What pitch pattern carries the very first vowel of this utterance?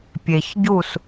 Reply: low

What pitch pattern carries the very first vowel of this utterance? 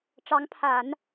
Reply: rising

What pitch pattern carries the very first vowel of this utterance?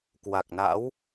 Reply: low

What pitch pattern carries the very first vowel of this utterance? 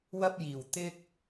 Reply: high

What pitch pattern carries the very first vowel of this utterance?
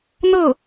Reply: falling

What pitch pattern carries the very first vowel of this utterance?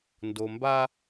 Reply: low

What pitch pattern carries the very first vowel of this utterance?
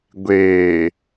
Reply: low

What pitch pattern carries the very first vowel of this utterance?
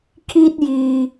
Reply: high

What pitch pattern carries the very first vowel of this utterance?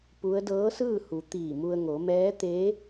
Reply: rising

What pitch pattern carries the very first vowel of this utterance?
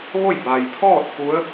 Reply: falling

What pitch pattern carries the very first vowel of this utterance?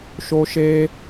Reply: high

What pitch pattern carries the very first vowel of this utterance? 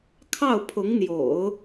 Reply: falling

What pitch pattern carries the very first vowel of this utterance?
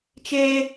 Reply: high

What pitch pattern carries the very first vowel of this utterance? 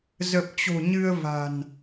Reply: low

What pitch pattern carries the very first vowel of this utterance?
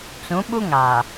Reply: rising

